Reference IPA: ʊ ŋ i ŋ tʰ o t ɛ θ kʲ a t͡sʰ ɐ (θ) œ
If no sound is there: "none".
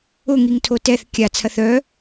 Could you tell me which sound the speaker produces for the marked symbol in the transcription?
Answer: θ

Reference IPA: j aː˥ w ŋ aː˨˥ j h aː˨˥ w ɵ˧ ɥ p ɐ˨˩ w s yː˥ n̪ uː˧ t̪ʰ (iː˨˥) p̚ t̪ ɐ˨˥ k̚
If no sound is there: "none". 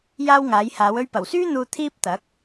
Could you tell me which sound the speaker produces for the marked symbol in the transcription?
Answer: iː˥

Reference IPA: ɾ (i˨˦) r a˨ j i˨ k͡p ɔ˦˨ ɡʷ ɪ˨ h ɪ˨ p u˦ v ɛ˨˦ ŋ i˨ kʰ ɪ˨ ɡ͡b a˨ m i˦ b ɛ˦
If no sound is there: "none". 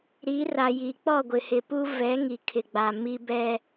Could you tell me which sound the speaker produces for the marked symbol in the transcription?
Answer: i˨˦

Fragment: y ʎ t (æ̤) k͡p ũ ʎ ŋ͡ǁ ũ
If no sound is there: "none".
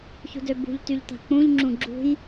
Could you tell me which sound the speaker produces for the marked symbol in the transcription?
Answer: a̤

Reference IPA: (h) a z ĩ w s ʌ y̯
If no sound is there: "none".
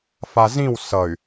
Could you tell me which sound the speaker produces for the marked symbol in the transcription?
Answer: f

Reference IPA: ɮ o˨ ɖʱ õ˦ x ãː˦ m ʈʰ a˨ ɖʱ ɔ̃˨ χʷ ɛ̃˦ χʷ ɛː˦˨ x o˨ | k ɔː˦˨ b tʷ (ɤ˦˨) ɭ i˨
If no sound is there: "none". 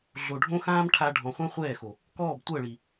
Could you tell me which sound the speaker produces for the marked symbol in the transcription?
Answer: ɤ˦˨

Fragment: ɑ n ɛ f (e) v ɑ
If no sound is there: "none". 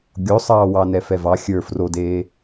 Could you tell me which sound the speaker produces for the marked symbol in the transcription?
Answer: ɛ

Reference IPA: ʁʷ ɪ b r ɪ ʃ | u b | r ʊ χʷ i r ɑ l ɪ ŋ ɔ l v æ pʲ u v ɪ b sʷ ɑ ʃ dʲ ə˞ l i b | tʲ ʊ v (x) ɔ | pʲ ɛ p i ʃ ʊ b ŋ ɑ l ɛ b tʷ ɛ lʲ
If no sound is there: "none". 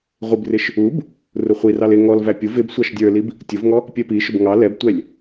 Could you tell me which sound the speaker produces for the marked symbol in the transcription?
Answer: ŋ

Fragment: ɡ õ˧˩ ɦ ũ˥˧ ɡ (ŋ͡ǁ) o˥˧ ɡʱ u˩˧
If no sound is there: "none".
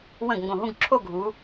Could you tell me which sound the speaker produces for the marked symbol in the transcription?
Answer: ǁʰ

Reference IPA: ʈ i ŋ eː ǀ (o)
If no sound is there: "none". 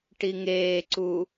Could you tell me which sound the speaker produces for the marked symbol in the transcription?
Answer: u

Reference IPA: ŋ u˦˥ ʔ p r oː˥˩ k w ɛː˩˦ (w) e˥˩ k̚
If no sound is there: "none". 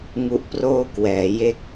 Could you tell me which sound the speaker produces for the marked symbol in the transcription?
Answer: j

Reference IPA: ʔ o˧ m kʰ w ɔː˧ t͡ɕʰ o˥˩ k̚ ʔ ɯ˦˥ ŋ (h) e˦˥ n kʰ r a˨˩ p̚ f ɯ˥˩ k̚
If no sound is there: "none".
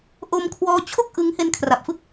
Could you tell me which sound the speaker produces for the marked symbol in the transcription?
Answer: h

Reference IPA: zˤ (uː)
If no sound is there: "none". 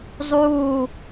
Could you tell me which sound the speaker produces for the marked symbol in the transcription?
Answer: uː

